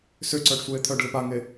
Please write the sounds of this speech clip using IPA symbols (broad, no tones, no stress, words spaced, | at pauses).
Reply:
sʏǀœɖ sʷeːt̪ʰœɖlɪp aŋe